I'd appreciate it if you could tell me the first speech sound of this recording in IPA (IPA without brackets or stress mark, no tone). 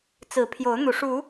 t͡s